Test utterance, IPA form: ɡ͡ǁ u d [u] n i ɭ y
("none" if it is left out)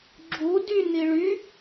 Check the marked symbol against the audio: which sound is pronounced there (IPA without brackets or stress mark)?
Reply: y